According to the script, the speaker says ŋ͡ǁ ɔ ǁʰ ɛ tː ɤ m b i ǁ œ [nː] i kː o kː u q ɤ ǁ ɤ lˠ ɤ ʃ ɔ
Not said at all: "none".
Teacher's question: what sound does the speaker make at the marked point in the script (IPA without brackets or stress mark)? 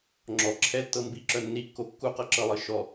nː